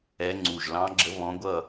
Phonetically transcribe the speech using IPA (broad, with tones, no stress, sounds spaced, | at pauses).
ɛ˧˥ ŋ͡ǀ u˧˩ ʒ l ɑ̃˧˥ ɡ͡ǁ ə˧˥ β ɔ̃˧˥ ɡʷ ʌ˥˨